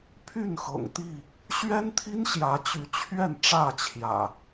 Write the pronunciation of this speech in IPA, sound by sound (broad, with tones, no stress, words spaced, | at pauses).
pʰy˥˨n xɤ̰˨˩ŋt̪i˥˨ | ɕɥɛ˦nt̪ʰi˦nɕjä˨˦ t͡ɕy˨˦t͡ɕʰɥɛ˥˨n ʈ͡ʂä˥˨t͡ɕʰjä̰˨˩